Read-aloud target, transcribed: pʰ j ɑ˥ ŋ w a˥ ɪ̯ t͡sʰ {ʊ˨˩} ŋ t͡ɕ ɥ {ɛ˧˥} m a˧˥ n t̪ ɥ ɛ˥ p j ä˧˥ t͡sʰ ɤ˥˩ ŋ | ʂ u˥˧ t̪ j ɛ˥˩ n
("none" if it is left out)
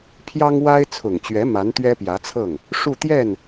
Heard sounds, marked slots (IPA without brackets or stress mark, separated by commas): ʊ˨˩, ɛ˧˥